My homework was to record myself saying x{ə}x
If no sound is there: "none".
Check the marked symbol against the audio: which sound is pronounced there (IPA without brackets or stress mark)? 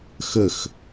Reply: ə